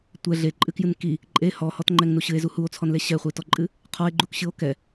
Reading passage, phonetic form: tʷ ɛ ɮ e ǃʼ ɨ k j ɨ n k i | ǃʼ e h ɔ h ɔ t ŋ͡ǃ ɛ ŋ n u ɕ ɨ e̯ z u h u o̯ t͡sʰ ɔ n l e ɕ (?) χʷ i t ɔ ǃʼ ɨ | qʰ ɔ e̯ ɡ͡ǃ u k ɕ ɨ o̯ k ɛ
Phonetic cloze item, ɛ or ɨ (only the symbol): ɛ